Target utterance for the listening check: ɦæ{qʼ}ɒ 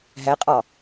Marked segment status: correct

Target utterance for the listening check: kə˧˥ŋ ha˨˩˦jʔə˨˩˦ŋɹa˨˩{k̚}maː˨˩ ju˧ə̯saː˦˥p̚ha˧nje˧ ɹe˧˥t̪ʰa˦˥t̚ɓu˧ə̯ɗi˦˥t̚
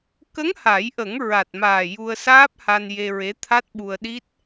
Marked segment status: incorrect: t̚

